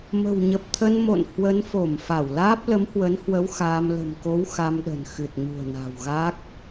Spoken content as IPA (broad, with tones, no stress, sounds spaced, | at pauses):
m ə̤˨˩ w ɲ ə˨˩ p̚ t̪ʰ ə˧ n m o̰˧˨ n h w ə˨˦ n f o˧˩ m f a˧˩ w l aː˦˥ p̚ l ə˨˦ m h w ə˨˦ n h w ə˨˦ w x aː˧ m l ə̤˨˩ m k o˨˦ w x a˧ m ɗ ə̤˨˩ n x ɨ˨˩ t̚ ɲ ṳ˨˩ ə̯ n a̤˨˩ w ɣ a˦˥ k̚